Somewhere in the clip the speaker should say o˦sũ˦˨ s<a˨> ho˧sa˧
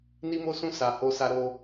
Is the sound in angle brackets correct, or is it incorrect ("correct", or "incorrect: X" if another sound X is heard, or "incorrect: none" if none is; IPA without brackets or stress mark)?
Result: correct